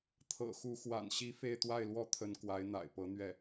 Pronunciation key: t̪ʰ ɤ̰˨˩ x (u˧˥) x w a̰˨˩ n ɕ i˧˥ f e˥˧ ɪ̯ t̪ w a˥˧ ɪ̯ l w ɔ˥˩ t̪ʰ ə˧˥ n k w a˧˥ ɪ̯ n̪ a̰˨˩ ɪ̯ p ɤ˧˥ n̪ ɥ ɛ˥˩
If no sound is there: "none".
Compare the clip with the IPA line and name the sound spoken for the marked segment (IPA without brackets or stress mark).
u˧˥